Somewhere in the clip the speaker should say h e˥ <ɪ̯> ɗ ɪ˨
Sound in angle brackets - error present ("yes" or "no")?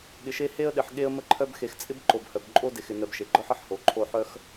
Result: yes